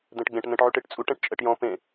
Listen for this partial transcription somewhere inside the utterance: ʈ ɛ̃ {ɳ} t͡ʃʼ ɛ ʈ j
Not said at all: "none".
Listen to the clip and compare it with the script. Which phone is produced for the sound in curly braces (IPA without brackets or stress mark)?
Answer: ʈ